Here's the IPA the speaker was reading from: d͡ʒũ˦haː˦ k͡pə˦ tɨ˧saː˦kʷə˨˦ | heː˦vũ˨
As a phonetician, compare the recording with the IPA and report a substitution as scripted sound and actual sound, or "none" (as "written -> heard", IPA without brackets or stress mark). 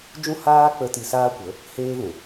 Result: none